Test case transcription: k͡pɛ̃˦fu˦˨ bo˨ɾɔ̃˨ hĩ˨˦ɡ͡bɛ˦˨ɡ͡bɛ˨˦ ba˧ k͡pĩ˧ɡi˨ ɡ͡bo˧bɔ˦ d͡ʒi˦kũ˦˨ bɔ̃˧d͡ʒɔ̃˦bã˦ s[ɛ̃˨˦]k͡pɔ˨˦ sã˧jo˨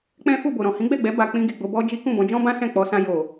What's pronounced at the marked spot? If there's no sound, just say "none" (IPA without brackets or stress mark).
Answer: ɛ̃˦˨